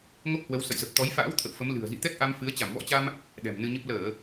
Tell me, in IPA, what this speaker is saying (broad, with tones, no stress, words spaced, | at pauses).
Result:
ŋo˦˥k̚hwə˨˦wsə̰˧˨jzə˨˩p̚ t̪ɔ˨˦jfa̰ː˧˥w t̪ʰə̰˧˨wfə˨˦m lɨ̤˨˩ə̯ zḭ˧˨t̪ɛ˦˥k̚ʔa˧m fɨ˨˦ə̯ t͡ɕa˧˩mvɔ̰˧˥t͡ɕa˧m | ɗɛ̤˨˩mnɨ˧ɲə˦˥p̚ ləː˧˩˨